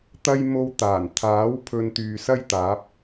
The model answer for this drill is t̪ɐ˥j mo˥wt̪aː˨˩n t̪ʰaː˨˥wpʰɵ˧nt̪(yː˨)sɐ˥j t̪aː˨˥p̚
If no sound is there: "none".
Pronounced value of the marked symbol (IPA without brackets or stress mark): yː˨